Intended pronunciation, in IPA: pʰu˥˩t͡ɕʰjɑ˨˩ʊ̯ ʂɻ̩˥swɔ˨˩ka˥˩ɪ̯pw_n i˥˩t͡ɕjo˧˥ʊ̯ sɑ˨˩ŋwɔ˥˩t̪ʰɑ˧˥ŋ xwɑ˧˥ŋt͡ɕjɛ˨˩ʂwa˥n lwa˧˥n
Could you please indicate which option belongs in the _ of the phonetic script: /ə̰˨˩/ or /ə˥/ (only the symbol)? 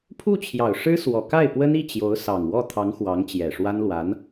ə˥